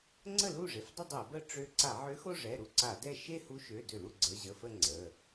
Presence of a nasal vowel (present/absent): absent